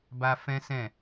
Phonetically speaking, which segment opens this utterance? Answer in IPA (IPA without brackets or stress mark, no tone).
b